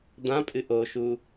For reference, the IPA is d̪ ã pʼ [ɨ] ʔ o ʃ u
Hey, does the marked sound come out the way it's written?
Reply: yes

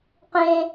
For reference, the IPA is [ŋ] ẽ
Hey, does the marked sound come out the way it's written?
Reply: no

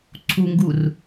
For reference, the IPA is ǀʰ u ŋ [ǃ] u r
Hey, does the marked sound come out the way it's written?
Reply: no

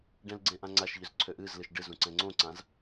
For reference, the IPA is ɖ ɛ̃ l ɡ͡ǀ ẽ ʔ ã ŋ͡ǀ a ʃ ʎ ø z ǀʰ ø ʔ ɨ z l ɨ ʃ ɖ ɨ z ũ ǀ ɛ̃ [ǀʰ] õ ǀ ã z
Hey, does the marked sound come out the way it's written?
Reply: no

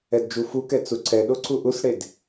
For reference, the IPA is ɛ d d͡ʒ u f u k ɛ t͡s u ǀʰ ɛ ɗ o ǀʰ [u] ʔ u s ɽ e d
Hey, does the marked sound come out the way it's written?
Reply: yes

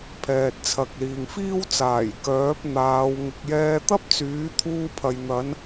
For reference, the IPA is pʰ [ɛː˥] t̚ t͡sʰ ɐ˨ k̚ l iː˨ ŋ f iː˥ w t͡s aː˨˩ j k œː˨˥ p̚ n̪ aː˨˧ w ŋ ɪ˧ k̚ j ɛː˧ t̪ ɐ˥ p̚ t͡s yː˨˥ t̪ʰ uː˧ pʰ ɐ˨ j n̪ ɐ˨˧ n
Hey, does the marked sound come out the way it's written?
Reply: no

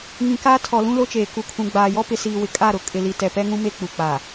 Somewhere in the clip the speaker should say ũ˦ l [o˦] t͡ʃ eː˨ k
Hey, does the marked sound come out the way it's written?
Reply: yes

